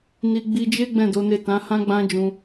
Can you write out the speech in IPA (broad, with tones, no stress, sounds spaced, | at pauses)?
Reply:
n i˧ ɡ͡b i˧ d͡ʒ e˦ ɡ͡b ɛ̃˦˨ d o˨˦ n e˦˨ t ã˨˦ h ã˦ ɡ͡b ã˦ d͡ʒ ũ˧